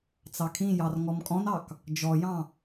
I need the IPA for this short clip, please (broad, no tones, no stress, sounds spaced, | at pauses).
t͡s ɑ kʰ ĩ j ɑ r ŋ ɔ m kʼ ɔ̃ n ɑ k | d͡ʒ ɔ j ɑ̃